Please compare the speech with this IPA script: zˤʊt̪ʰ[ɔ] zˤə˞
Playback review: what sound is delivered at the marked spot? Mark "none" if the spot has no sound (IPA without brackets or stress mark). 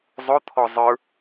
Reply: ɔ